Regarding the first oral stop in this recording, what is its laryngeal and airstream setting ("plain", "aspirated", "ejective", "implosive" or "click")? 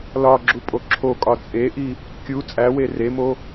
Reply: click